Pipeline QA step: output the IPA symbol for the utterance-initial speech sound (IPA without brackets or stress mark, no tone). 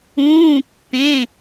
ũː